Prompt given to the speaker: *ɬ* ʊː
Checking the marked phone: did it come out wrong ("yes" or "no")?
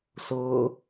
yes